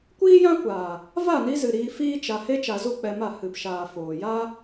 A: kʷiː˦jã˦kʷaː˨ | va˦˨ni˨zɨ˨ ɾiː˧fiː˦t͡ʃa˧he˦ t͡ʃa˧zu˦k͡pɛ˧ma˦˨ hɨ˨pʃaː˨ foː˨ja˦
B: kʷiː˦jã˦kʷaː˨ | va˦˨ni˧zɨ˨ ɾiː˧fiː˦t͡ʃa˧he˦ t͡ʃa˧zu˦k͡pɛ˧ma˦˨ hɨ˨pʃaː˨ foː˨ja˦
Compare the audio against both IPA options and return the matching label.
B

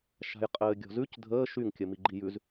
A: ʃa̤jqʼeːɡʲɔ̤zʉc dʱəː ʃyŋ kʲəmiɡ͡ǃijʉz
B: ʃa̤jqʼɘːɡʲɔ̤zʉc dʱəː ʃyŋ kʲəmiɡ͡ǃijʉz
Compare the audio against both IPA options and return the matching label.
B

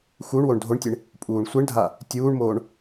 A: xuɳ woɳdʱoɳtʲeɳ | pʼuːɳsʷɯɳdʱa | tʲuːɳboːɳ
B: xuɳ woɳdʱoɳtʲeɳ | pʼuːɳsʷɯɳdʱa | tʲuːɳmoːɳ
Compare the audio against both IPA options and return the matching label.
B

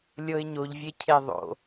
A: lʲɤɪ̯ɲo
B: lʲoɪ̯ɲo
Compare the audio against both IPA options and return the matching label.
A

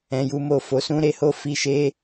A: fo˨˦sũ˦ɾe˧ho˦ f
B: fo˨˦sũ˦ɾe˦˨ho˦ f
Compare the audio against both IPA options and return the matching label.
A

